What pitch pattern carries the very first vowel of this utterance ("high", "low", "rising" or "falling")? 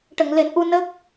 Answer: low